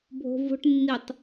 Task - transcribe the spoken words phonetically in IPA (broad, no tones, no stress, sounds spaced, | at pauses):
bʱ o̤ v o̤ ʈ nː i tˤ